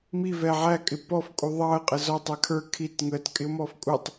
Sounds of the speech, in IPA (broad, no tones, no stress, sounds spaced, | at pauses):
m i v ɛ ʕ æ kʼ ɪ p ɔ f kʼ u ðˤ ɑ ə̯ qʼ ə z ɔ tˤ ɛ kʰ ə˞ kʰ i t ŋ ə t kʼ ɪ ʊ̯ m ɔ f kʼ u tˤ